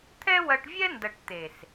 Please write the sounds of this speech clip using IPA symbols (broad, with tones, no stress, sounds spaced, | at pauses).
t̪ʰ ɛ˦ w ɐ˧ ʈ vʲ ɛ˦ n d ɐ˨ ʈ t̪ e˨ s